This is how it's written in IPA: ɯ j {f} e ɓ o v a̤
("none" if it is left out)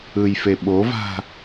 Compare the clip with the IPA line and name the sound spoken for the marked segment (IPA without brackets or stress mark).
f